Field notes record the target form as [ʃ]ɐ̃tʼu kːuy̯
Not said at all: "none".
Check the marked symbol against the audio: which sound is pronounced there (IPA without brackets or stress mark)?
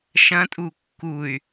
ʃ